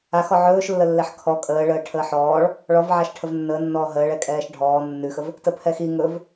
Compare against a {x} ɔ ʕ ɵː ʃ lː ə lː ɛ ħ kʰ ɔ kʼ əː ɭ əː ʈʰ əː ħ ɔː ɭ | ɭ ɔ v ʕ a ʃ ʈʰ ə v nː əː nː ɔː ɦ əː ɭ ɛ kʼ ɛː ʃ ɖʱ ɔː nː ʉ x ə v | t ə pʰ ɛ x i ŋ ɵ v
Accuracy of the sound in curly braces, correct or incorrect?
correct